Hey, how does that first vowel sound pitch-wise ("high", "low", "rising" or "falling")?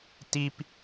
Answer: high